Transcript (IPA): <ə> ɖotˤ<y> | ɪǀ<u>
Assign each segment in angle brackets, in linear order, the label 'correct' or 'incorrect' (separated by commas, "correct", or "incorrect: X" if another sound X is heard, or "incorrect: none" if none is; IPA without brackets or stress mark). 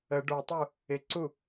correct, incorrect: u, correct